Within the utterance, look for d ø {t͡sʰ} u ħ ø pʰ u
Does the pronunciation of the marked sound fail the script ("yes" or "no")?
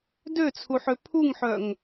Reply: no